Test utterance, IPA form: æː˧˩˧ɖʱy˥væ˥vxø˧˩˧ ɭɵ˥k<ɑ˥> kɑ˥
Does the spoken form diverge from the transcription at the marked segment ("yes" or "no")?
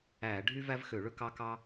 no